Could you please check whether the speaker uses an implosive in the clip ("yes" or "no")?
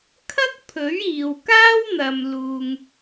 no